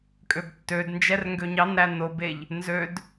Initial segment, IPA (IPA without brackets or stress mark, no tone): kʼ